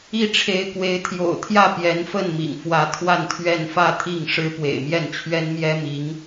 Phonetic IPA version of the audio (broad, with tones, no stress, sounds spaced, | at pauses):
i˥˩ ʈ͡ʂʰ e˧˥ ɪ̯ k w e˧˥ ɪ̯ t̪ʰ j o̰˨˩ ʊ̯ t̪ʰ j ä˥˩ p j ɛ˧˥ n f ə˥˩ n m ḭ˨˩ ŋ f w ä˧˥ t̪ʰ w a˥˧ n t̪ʰ ɥ ɛ˥˧ n f ä˥˧ t̪ʰ i˥˩ ŋ ʂ ɻ̩˥ p w ḛ˨˩ ɪ̯ m j ɛ˥˩ n t͡ɕʰ ɥ ɛ˥ n m j ɛ˥ m i˧˥ ŋ